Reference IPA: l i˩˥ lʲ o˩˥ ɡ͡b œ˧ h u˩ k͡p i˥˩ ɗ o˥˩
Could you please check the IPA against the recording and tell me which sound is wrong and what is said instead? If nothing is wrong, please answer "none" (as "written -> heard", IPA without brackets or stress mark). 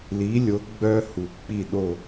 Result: none